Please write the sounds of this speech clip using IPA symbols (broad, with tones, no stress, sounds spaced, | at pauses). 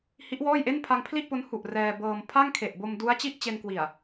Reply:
h i˦˥ ʔ w ɔː˥˩ j ʔ e˥˩ n pʰ a˧ ŋ pʰ l i˥˩ ʔ p o˦˥ n h u˨˩ ʔ r ɛː˧ b ɤː˧ m pʰ a˥˩ ŋ kʰ e˨˩ ʔ b o˧ m d u˦˥ a̯ t͡ɕ i˥˩ ʔ t͡ɕ e˧ n k w i˨˩ a̯